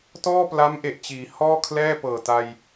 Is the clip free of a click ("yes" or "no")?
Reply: yes